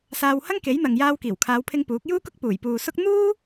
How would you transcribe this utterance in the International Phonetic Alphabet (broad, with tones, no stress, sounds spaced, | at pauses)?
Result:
s aː˧ w h ɐ˥ ŋ k e˨˥ j n̪ ɐ˨ ŋ j aː˧ w k iː˨˩ w kʰ aː˨˧ w pʰ ɪ˧ ŋ p uː˨˥ k̚ j uː˥ k ʊ˥ k̚ p uː˨˩ j p uː˨ s ʊ˥ k̚ n̪ uː˥